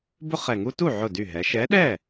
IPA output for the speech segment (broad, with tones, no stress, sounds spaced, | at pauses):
b ʊ˦ χ ɛ˨˩ ŋ u˦ t u˥˩ ʕ ʊ˥˩ d y˥˩ ɦ ɛ˨˥ ʃ ɛ˨˥ ɗ ɛ˥˩